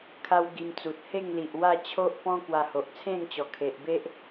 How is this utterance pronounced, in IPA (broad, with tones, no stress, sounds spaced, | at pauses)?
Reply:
kʰ a˦ w ɡ i˧ m t͡s u˨ t̚ h e˥˧ ŋ l i˨ ʔ w a˥˧ t͡ɕʰ o˦ ʔ p ɔ̃˦ k w a˧ h o˨ ʔ t͡sʰ ẽ˥˧ ŋ t͡ɕ ɔ˨˩ kʰ e˨ ʔ b e˦ ʔ